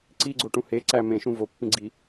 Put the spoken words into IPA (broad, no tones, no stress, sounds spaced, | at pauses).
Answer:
ǀ i ɡ͡ǀ o ʈ ũ h e ǀ æ m ẽ ʃ ũ v o pː ĩ ɡ͡ǀ i